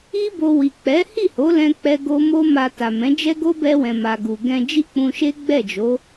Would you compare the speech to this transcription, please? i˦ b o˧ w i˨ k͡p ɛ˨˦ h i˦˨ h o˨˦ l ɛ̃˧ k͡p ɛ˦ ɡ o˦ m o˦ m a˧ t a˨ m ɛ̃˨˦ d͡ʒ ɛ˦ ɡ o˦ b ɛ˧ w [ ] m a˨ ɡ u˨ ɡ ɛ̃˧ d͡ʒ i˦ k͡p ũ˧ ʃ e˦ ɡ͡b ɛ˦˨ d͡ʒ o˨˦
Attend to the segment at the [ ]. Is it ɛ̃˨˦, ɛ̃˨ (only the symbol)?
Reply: ɛ̃˨